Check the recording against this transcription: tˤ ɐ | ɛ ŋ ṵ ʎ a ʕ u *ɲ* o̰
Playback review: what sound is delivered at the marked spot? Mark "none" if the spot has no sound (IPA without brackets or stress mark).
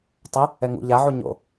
ɲ